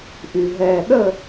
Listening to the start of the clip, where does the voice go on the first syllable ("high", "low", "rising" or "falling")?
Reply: low